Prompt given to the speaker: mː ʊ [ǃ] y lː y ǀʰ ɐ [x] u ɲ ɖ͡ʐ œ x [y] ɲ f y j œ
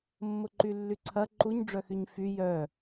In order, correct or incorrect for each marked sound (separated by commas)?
correct, incorrect, correct